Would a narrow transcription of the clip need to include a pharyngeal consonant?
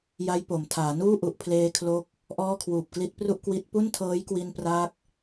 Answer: no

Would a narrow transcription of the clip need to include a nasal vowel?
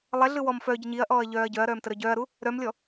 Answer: no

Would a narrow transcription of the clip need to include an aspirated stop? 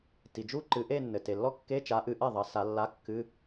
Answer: no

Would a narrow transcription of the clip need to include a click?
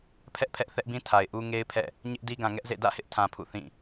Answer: no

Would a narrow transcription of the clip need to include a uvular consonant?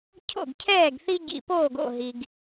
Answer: no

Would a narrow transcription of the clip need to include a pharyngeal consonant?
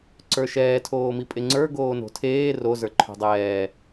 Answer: no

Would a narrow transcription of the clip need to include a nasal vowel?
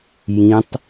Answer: yes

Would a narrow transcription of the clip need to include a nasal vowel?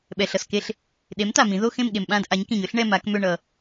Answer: yes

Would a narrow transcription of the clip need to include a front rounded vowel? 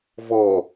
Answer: no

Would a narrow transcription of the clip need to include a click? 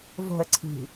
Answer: yes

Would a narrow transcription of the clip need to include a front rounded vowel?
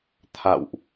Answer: no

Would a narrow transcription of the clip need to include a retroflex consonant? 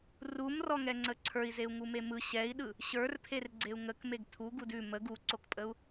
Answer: no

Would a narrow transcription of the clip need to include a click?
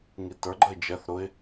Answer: yes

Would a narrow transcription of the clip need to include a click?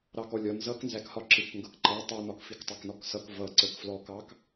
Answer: yes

